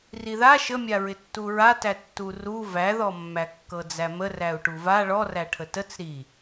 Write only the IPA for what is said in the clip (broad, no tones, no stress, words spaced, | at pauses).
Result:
riða ʃəmʲaɹɪ tːuɹatæ tːuru væðɔmːæ kːɤd͡zæmər æu̯ʈuva ɭɔræʈʰə tət͡s ɾi